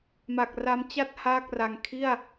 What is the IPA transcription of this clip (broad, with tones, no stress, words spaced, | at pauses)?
ma˨˩k̚ ra˦˥mt͡ɕa˥˩t̚ haː˥˩k̚ra˧ŋ kʰi˥˩a̯